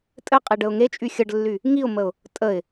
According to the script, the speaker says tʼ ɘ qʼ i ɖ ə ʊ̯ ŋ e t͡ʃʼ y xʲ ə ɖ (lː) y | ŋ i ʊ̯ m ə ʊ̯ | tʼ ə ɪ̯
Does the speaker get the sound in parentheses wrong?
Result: no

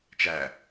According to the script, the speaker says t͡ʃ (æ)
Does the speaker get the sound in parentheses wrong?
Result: no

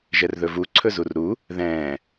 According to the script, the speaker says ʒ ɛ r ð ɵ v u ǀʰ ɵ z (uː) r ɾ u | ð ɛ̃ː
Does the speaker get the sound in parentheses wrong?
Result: yes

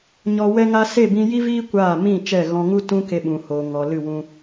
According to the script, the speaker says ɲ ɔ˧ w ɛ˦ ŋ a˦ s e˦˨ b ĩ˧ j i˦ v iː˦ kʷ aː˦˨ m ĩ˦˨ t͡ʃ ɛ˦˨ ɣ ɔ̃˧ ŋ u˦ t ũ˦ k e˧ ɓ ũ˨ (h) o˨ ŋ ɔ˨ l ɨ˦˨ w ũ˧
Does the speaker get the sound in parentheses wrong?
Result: no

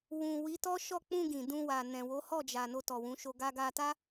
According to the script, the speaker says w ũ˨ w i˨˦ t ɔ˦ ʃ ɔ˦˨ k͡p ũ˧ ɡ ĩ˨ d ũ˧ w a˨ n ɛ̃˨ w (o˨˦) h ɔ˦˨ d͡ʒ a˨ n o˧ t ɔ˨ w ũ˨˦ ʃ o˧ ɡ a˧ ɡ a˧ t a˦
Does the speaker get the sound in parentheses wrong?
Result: no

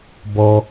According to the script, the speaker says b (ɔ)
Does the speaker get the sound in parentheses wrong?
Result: no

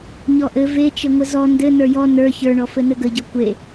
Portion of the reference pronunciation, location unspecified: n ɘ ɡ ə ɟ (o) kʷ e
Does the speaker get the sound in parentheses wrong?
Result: yes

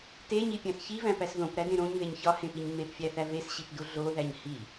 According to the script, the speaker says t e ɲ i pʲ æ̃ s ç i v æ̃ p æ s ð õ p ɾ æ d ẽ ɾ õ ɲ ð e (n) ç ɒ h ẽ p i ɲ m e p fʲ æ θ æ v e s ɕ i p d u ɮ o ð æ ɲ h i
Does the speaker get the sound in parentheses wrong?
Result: yes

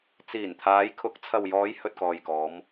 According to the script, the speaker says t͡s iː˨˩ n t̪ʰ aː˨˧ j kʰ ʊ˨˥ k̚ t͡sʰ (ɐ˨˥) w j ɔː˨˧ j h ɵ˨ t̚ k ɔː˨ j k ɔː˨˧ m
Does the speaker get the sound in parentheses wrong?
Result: yes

